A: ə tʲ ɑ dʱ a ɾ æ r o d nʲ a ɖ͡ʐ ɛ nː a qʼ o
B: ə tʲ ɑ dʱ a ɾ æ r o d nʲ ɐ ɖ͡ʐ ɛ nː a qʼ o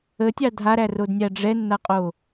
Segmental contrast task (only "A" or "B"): A